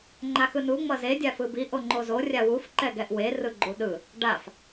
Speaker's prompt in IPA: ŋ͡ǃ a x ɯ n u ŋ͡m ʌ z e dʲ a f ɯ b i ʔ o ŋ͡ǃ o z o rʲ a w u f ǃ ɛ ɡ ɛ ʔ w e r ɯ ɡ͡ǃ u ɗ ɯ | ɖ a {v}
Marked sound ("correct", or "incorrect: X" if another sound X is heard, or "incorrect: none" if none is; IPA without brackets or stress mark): incorrect: f